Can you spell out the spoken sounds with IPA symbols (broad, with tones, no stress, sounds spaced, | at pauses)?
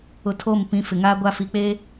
ʊ˨ tʰ o˦˨ m p ĩ˨˦ f ɪ˨ ŋ aː˦ ɡʷ a˦ f i˨ k͡p eː˦